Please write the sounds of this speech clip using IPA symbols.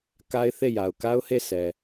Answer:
k a˦ ɪ̯ θ e˦˨ j a˨ ʊ̯ k a˦ ʊ̯ h e˦˨ s ɛ˨

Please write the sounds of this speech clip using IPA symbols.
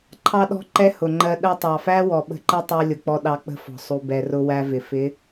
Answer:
ǃʰ ɑ˦ ɗ ɔ̤˦ ǃ ɛ˦ h ʊ˨ ŋ͡ǃ ɜ˧ ɗ ɜ˧ tˤ ɑ˨ f æ˦ w ɔ˨ ɓ ə̤˧ ǃ ɛ˦ tˤ ɜ˧ lʲ ʊ˨ k͡p ɔ˧ ɗ ɑ˧ k͡p ə̤˦ f ɔ̤˨ sˤ u˨ b ɛ˨ r ʊ˧ w æ˧ v ɪ˨ f ɪ˨˦

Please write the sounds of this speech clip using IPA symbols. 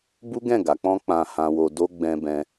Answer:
b u˦ ɡ ɛ̃˦˨ ɡ a˨˦ k͡p ɔ̃˦ k͡p ã˧ h ã˧ w o˧ d o˦ ɡ͡b ɛ̃˧ b ɛ̃˧

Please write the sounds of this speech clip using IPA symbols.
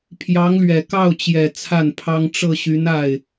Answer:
pʰ j ɑ˧˥ ŋ l ɥ ɛ˨˩ k ɑ˥˩ ʊ̯ t͡ɕ j ɛ˨˩ t͡sʰ a˥˩ n pʰ ɑ˥ ŋ ʈ͡ʂ ɤ˥˩ ɕ y˧˥ n a˥˩ ɪ̯

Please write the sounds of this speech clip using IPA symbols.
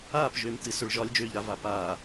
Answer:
aː p ʒ øː m t ɨ s ø ɭ ʒ ɒ lʲ d͡ʒ øː ʎ ɾ a v a p aː

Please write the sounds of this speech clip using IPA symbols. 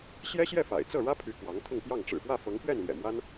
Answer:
ɕ j ɛ˥ ɕ j ɛ˥˩ f a̰˨˩ ɪ̯ t͡s ɤ˥˩ ɻ ä˥ pʰ y˧˥ k w ɑ˧˥ ŋ t̪ʰ ʊ˥˧ ŋ p j ɑ˥˩ ŋ ʈ͡ʂ ɻ̩˨˩ p w ä˥˩ f ɤ˧˥ ŋ p ɥ ɛ˥˩ n l j ɛ̰˨˩ m w a˥ n

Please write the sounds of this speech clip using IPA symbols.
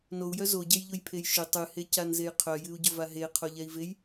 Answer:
n o u̯ j œ z o ɟ e j ʎ ʊ j pʰ e j ʃ ʏ tˤ ɨ h e c a n z e j qʰ œ j ɨ u̯ ɟ ʊ v a ɦ e qʰ o ʎ ɛ i̯ v e j

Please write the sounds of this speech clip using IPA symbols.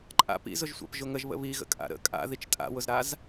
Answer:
ǃʼ a̰ p ḭ z ʊ ʒ sʷ a̰ p ʒ ʊ ŋ ə ʒ β ə̰ β i ɣ ə̰ kʼ a̰ ɾ ə̰ kʼ a̰ ð i t͡ʃ tʼ a̰ w ʊ z ɾ a z

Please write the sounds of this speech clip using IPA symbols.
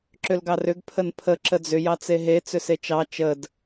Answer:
ǁ ʏ l ɡ ɑ r ʏ ɡ pʰ ə n pʰ ə ǁ ə d͡z ʏ j ɑ t͡s e ɦ e t͡s ʏ s e t͡ʃ ɑ t͡ʃ ə d

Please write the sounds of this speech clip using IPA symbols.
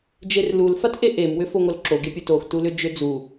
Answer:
d͡ʒ e r l u l f a t ʔ e ʔ e m w ʏ f o ŋ o l ǁ o ɡ e pʲ u t o x t u l ʏ d͡ʒ ʏ d͡z u

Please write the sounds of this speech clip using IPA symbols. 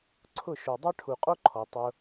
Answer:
ǀʰ ʊ˦˨ ʃ o˨ dˤ a˦ ʈʰ u˨ qʼ o˦ ǃʰ ɔ˨ tˤ ʊ˧

